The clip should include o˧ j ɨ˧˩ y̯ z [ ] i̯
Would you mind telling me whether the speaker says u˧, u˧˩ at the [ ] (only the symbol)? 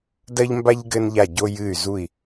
u˧˩